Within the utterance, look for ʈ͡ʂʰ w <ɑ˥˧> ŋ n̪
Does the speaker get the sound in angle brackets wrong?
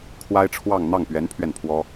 no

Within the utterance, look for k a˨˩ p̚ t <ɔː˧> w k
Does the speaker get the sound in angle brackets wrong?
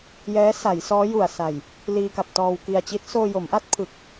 no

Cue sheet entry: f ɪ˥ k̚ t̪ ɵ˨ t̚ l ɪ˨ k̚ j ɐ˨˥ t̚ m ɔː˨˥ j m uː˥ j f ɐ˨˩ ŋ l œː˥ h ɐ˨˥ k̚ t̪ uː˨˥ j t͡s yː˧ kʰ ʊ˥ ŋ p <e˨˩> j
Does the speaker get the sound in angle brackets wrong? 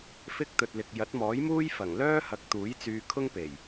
no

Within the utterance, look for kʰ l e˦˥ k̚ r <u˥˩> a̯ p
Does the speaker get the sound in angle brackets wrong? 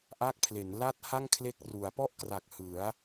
yes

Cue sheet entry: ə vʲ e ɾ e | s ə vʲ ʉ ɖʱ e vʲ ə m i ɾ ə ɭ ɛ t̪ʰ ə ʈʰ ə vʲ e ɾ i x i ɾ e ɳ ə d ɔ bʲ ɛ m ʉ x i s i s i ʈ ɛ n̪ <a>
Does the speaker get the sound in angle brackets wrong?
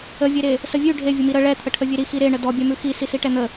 yes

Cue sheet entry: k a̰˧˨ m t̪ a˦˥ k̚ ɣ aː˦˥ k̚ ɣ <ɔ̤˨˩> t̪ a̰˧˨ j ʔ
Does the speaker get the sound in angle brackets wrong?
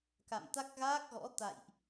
yes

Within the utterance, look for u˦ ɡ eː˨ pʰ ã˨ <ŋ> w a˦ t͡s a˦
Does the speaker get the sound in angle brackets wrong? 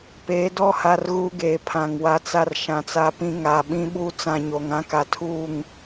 no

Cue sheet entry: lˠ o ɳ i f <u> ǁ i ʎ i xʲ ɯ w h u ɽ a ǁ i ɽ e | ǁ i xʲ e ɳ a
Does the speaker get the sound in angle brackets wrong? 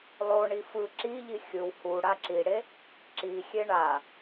yes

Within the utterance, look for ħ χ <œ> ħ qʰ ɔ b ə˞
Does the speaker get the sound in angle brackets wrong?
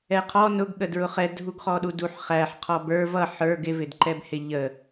yes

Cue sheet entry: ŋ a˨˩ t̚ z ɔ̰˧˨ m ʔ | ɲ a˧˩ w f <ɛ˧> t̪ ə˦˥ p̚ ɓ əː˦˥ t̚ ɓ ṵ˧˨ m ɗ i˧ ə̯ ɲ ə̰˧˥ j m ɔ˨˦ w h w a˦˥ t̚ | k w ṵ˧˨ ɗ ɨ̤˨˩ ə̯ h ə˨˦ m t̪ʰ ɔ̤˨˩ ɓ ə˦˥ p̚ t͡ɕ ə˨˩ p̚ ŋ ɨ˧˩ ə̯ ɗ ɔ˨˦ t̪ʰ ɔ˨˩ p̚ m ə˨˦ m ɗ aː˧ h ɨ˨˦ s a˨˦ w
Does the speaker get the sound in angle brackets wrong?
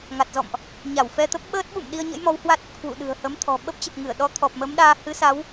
no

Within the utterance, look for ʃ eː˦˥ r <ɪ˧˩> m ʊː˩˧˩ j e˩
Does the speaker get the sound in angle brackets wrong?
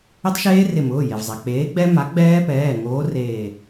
no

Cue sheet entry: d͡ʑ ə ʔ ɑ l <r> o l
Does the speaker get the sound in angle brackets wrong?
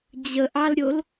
yes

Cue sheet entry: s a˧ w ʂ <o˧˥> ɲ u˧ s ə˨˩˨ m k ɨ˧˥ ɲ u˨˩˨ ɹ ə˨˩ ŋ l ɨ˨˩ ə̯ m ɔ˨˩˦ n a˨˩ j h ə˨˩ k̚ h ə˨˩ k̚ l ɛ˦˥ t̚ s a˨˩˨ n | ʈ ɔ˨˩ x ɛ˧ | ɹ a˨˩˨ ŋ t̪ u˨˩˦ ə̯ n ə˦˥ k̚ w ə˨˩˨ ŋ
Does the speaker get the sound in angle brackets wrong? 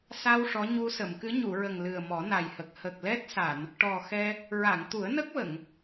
yes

